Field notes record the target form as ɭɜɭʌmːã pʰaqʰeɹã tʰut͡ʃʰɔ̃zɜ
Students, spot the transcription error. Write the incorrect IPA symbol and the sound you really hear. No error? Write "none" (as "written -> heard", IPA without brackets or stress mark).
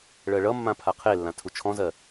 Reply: ɹ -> lː